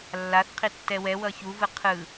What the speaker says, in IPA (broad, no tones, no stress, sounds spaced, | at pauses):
lː a θ qʰ i tː ɛ w ɛ w ʌ ç u v ɯ qʰ ɯ